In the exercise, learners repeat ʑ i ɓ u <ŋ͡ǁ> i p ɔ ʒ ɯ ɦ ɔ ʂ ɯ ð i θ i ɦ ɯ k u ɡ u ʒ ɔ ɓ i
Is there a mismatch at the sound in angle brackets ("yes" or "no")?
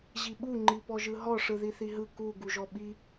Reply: yes